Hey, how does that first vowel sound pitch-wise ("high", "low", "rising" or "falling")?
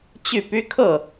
falling